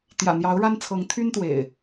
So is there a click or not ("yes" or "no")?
no